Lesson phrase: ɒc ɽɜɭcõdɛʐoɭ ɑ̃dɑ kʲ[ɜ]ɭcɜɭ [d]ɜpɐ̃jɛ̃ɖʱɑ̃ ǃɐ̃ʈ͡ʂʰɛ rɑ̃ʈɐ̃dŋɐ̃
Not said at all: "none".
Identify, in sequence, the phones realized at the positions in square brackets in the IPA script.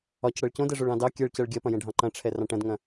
ɜ, ɡʲ

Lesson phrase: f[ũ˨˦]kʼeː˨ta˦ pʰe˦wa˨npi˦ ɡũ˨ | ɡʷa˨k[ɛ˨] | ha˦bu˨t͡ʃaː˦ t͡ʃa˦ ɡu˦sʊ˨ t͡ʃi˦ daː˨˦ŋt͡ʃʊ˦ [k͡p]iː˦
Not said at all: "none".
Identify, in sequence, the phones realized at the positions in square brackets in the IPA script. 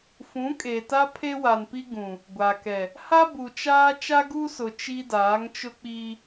ũ˨˦, ɛ˨, k͡p

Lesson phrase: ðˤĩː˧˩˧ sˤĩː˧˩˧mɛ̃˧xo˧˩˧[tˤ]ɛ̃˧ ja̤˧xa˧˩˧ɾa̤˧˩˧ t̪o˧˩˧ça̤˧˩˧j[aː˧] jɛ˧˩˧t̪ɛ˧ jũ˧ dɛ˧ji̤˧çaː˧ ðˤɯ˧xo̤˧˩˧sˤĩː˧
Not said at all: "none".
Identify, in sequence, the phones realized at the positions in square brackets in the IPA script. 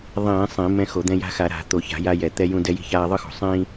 d̪, a˧

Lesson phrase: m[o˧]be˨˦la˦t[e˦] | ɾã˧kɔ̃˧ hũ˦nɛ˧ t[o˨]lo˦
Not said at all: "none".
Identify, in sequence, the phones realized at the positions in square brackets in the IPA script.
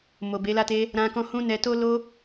o˨, e˦, o˦

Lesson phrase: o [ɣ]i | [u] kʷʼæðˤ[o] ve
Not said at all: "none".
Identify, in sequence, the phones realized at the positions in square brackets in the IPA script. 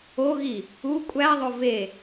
ɣ, u, o

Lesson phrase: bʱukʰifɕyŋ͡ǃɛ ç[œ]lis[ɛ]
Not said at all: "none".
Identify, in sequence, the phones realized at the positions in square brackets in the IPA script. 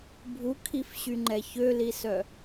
ø, œ

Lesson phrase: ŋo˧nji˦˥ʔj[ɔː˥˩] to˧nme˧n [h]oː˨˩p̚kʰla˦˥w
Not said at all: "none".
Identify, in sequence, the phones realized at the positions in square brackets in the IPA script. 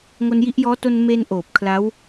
ɔː˦˥, ʔ

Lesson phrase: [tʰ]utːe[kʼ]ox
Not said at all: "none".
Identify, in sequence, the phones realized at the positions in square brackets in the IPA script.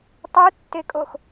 tˤ, kʼ

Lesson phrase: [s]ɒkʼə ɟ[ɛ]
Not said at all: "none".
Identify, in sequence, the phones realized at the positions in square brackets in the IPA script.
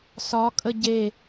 s, e

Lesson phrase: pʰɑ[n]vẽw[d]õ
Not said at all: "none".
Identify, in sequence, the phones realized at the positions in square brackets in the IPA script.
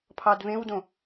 d, d

